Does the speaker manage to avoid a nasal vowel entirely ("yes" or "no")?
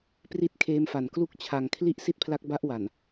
yes